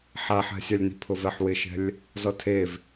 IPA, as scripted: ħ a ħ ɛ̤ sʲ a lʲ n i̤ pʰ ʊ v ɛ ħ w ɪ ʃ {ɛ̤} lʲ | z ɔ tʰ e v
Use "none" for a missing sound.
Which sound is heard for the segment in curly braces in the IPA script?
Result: ɛ̤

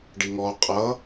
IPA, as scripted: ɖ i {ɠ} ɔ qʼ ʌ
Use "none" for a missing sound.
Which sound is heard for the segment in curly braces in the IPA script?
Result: ŋ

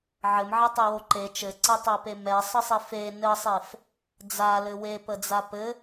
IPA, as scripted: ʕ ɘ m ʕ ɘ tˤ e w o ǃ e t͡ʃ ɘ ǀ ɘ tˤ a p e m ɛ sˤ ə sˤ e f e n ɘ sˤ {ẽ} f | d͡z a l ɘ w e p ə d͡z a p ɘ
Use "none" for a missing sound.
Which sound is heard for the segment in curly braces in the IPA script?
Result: e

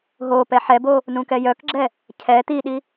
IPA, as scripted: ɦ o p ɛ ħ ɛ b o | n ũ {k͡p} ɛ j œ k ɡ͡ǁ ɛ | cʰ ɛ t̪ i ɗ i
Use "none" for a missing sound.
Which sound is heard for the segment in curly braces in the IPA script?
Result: k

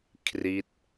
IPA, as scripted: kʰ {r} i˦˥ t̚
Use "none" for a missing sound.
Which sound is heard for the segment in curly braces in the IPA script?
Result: r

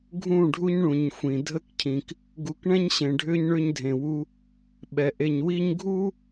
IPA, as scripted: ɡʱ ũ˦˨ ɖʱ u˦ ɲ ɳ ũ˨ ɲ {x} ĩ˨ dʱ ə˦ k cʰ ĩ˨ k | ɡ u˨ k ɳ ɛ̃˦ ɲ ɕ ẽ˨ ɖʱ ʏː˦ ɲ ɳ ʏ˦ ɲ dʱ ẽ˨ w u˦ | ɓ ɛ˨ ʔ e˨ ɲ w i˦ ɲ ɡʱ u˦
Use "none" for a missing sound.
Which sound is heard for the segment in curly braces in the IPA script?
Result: xʷ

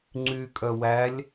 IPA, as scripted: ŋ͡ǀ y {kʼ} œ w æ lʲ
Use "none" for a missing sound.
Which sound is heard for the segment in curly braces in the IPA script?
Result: kʼ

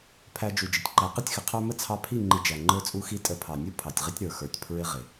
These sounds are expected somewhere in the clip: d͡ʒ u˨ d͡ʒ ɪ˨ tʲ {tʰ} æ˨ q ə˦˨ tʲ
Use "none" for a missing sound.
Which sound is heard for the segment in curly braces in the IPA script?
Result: ǃ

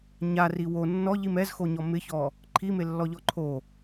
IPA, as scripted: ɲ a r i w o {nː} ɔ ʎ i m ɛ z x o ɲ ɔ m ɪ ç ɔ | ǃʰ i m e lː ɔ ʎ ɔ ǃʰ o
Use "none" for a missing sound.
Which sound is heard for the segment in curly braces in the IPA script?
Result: nː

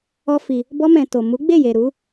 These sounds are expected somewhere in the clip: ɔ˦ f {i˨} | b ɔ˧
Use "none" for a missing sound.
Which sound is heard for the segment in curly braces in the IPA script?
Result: i˧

